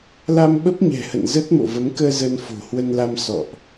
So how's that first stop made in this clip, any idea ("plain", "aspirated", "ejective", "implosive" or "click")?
implosive